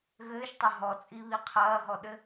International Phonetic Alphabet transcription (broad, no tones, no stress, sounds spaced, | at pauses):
ɣ ɘː ʃ tˤ ɐ ɦ ɔ t͡sʼ i β i qʰ ɐː ɦ ɔ ɗ ɘ